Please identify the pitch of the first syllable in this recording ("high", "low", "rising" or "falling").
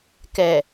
low